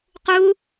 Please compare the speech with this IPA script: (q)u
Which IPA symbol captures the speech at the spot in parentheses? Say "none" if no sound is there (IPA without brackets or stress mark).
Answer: q